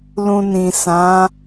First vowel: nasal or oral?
nasal